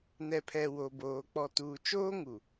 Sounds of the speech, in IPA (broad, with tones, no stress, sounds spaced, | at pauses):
n ɛ˨ pʰ ɛ˨ w o˨ b oː˨ k͡p ɔ˨ t uː˨ t͡ʃ oː˦ ŋ u˨